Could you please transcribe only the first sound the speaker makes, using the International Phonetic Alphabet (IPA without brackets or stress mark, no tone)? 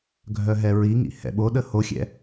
ɡʱ